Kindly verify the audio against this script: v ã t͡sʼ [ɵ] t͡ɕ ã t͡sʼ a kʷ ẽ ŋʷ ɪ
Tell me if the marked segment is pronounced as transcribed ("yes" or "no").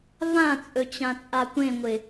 yes